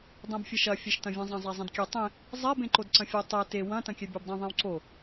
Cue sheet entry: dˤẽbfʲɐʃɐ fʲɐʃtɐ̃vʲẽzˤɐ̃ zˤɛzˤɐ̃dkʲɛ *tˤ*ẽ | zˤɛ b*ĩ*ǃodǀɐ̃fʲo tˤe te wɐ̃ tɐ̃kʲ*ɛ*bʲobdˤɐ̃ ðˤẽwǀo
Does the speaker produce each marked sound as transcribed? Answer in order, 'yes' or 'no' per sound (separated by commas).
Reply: yes, no, yes